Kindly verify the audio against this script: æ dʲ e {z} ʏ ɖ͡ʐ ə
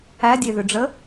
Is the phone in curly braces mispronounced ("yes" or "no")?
yes